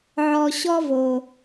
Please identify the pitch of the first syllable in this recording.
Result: low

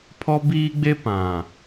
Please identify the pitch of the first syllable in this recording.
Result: high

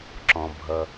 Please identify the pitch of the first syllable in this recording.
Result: low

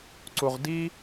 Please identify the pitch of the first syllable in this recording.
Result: low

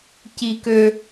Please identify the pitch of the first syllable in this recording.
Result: high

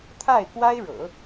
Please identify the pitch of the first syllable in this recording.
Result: falling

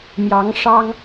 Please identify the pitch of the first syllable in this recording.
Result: rising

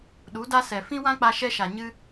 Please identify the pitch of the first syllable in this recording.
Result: rising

